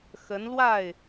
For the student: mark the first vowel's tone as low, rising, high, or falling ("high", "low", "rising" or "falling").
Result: rising